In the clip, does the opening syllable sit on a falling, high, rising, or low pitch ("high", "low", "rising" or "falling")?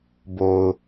low